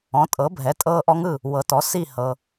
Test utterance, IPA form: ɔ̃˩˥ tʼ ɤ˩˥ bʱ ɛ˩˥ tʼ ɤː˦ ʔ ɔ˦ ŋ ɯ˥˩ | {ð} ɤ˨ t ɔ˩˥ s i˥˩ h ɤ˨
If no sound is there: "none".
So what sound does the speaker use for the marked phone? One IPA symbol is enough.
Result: w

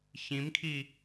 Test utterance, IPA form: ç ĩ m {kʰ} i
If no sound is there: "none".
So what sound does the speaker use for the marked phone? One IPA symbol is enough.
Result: kʰ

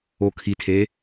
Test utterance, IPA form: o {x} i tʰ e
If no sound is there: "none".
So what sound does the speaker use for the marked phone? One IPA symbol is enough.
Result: kʰ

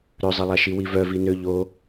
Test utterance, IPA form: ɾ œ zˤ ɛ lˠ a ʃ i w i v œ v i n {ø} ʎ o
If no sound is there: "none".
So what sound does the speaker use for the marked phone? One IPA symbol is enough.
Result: ø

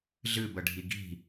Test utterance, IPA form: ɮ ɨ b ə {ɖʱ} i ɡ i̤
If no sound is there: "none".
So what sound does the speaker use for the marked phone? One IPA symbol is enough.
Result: ɖʱ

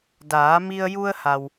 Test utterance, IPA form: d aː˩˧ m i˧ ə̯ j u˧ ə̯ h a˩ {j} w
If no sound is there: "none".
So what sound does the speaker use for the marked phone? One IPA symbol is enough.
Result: none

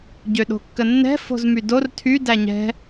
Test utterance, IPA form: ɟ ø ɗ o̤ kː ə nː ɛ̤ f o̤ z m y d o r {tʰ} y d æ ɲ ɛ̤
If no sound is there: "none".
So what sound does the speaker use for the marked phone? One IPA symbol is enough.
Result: tʰ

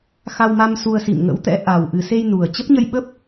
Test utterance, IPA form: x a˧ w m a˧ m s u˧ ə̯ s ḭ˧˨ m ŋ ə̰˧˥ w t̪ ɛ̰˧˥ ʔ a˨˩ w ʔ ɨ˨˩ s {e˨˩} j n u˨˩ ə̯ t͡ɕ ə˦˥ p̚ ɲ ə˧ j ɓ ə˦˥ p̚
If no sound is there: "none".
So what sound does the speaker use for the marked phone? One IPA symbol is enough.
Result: e˧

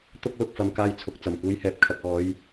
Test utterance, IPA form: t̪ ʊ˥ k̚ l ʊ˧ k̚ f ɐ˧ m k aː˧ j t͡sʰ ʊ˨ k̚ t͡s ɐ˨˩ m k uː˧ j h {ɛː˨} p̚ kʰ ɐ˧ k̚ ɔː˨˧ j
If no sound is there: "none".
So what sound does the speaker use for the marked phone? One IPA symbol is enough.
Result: ɛː˨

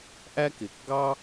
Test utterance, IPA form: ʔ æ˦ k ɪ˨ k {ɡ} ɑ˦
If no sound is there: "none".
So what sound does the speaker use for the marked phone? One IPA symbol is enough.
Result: ɡ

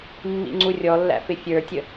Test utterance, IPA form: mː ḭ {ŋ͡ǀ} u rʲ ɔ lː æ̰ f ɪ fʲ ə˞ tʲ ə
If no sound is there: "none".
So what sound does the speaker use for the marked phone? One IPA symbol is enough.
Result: ŋ͡ǀ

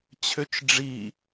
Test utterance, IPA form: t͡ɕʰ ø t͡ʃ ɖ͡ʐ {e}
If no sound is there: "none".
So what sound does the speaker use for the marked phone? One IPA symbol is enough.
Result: i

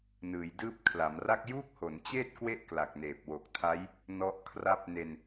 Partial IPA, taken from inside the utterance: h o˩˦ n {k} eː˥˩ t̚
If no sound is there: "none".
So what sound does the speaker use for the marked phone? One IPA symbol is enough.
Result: t͡ɕ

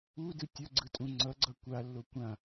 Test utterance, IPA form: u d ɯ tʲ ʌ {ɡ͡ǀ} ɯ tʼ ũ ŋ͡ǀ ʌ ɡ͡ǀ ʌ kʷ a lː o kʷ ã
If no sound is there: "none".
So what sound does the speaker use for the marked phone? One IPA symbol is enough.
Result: ɡ͡ǀ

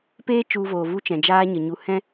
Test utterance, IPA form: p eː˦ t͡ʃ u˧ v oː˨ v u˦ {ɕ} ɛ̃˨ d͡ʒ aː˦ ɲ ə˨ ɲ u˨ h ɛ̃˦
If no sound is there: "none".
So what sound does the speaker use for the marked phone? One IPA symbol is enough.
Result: t͡ʃ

